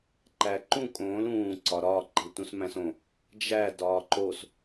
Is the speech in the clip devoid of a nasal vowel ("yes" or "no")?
no